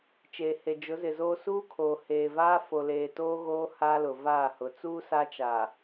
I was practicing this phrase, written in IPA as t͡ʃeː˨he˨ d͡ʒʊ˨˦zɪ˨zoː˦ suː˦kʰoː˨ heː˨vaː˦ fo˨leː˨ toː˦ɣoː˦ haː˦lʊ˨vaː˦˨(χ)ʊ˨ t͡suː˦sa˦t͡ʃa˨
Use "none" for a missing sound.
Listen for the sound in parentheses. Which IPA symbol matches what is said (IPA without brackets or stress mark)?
h